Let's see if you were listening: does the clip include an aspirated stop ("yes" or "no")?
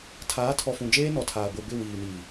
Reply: yes